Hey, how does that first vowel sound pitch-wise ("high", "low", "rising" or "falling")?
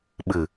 low